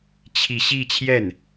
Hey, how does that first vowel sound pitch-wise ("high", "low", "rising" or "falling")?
falling